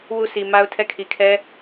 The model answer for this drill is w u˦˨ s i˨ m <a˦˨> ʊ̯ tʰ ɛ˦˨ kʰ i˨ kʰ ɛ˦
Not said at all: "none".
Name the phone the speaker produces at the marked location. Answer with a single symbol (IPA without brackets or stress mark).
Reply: a˦